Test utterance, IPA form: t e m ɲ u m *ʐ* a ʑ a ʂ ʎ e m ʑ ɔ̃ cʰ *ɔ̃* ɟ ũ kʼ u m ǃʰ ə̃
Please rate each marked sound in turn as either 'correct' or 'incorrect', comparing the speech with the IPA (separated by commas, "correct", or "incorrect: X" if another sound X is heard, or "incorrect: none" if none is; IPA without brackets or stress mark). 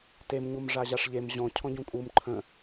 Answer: correct, correct